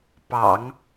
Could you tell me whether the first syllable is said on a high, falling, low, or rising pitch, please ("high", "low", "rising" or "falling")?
low